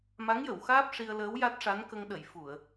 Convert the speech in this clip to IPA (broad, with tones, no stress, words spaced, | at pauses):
ma˧˥ŋjə˨˩˨wxaː˦˥p̚ ʂi˧ə̯ləː˧˥w ja˦˥t̚ʂa˧˥nkə˧ŋ ɗə˨˩˨j fu˨˩˨ə̯